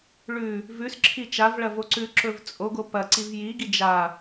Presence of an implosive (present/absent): absent